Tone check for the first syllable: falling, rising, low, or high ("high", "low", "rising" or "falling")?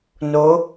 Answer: rising